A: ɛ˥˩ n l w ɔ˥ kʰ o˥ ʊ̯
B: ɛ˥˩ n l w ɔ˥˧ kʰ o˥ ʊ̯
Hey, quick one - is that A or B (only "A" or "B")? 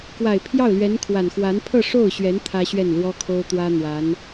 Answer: A